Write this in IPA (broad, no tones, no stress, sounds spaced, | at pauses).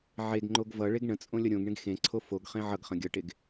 ʕ e ɡ ŋ͡ǃ o ɡ v ʌ ɭ e ɡ ɳ ə̃ t͡sʼ õ lʲ ʌ ɾʲ õ ɡ ɳ ẽ ɡ x ẽ ǀʰ o f o ɡ χ ẽ ʕ ʌ ɡ χ ə̃ ɡʲ ʌ ʈ e ɡ